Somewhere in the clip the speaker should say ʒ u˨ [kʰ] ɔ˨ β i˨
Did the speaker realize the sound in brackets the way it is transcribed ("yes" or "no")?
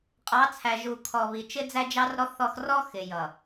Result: yes